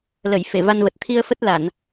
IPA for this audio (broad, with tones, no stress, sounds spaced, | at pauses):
l ə˧˩ j f e˧˩ v a˧ n v ə˨˩ t̚ t̪ʰ i˧ ə̯ f ə˦˥ t̚ l a˧˩˨ n